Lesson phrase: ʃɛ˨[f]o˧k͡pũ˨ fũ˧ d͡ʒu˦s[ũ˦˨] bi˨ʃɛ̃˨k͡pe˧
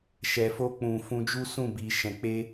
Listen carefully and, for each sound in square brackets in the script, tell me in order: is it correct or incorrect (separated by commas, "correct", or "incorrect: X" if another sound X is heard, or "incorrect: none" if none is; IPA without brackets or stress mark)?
correct, correct